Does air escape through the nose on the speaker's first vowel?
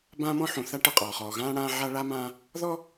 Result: yes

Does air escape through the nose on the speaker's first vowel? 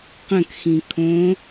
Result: yes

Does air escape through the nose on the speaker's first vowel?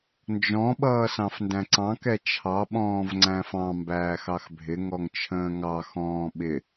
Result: yes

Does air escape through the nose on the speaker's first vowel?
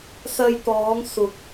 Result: no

